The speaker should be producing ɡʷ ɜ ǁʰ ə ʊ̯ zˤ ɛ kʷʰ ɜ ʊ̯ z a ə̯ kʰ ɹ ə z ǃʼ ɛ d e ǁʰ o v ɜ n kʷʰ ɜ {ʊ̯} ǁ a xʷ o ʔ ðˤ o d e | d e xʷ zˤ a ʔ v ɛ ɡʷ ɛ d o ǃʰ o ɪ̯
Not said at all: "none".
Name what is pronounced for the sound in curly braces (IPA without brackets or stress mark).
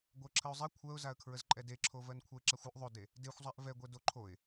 ɪ̯